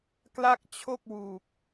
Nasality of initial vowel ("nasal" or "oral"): oral